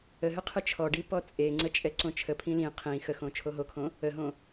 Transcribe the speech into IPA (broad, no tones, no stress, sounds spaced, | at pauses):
ə ɦ ɨ qʰ ɨ t͡ʃʰ ɔ ɖ i p ɔ t͡sʼ e ŋ͡ǀ ə t͡ʃʼ ɛ ǀ õ t͡ʃʰ ə pʰ ĩ l ĩ qʰ ĩ x ə x õ t͡ʃʰ o ɦ o kʰ õ | ə ɦ õ